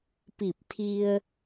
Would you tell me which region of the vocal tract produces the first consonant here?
lips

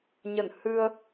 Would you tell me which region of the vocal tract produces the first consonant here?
palate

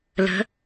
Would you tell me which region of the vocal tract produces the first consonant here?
tongue tip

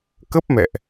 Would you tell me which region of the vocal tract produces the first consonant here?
velum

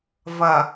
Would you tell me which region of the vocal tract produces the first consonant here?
lips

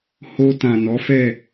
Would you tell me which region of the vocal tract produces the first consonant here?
throat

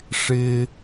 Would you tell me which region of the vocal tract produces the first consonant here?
retroflex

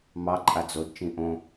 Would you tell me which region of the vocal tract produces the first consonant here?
lips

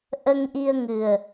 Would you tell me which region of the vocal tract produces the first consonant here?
throat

